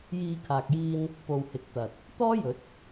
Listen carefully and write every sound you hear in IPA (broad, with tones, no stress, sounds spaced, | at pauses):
j iː˨˧ kʰ aː˨ k̚ j iː˧ n | p o˨ w h ɪ˨˥ k̚ t̪ ɐ˨ t̚ | t̪ ɔː˥ j ɵ˨˥ t̚